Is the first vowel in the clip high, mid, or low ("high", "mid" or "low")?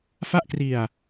low